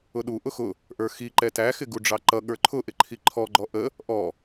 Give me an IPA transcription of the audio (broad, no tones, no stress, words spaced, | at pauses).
ʊɗu ʔʊxʊ | ʔə˞xiǃɛ tæxɪ ɡuɖ͡ʐɑǃʌ ɠə˞ǃʰʊʔɪ ǃʰiǃʰɔɡ͡ǃɔ ʔə | ʔɔ